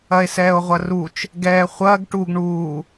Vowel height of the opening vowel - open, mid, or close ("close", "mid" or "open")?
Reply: open